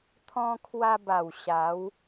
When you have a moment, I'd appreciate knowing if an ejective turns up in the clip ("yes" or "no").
no